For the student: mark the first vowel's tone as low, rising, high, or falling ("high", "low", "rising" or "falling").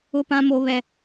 high